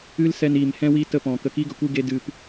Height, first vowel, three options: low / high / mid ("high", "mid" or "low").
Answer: high